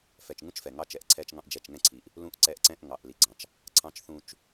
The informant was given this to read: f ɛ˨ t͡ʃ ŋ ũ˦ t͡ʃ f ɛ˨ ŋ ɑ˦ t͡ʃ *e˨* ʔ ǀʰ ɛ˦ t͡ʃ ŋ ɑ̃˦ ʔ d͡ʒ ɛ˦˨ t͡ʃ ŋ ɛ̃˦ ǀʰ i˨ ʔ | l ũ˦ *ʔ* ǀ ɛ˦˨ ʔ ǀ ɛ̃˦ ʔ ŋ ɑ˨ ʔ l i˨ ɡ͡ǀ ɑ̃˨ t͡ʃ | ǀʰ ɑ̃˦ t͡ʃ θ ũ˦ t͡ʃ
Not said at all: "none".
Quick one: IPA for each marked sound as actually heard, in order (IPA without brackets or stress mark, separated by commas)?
ɛ˨, ʔ